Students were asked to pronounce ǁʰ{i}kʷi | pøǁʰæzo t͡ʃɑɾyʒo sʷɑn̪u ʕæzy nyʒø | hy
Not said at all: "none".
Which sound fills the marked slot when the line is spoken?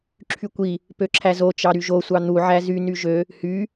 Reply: y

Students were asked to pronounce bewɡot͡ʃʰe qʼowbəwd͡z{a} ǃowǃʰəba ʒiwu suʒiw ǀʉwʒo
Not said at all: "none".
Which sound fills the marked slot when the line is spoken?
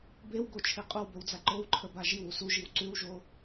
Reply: a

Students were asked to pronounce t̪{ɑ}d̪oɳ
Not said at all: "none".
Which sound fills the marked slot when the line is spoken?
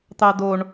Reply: ɑ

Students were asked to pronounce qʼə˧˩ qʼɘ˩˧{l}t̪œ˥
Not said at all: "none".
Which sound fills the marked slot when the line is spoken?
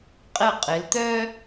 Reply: l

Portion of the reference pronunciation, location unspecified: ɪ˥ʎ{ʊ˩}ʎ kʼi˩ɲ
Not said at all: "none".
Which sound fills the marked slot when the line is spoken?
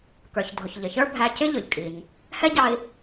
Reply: ʊ˩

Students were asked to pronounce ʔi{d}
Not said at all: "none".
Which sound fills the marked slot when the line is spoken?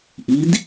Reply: d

